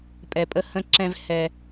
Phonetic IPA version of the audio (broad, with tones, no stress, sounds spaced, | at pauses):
pʼ ɛ˩ pʼ ə˨ h ə̃˨ ǁ ɛ̃˨ v h ɛ˨